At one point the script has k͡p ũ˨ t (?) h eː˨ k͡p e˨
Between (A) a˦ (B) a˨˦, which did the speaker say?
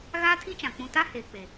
A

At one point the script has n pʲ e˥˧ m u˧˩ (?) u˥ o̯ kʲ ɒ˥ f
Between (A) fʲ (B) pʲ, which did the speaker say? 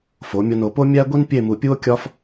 B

